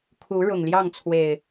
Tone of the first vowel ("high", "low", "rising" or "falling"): rising